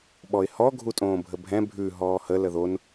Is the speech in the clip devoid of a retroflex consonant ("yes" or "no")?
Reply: yes